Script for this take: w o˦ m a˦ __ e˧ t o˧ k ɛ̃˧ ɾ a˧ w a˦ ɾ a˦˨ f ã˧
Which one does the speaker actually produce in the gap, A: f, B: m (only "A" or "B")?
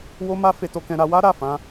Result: A